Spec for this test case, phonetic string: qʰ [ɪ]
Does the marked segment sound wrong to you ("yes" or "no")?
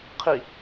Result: yes